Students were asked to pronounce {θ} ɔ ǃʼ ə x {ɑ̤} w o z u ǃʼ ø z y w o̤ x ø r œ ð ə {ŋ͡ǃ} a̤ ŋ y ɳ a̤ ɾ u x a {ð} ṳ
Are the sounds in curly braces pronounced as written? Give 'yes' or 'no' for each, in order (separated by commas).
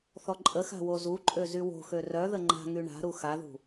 yes, no, yes, yes